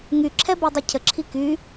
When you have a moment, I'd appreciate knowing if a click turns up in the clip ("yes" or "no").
yes